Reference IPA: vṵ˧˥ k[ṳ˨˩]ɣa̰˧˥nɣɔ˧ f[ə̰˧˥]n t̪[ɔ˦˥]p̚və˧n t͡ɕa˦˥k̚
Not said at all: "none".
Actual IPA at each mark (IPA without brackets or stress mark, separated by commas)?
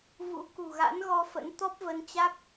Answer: ṳ˨˩, ə̰˧˥, ɔ˦˥